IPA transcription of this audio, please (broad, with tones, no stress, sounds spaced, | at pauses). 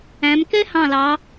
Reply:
æ̃˩˧ m k ɛ˥ h ɑ̃˧˩ l ɑ˩˧